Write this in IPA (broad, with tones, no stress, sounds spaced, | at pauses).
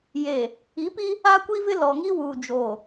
j eː˨ | i˨˦ p i˦ | a˦ kʷ i˦ v ɪ˦ l ɔ˨ ŋ i˦ w uː˨ d͡ʒ oː˨